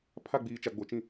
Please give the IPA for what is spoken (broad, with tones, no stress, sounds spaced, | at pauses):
pʰ a˦˨ ɡ͡b iː˨ t͡ʃ a˨ ɡ͡b o˨ t͡ʃ ĩ˦˨